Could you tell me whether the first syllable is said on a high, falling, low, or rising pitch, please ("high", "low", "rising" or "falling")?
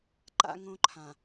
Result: high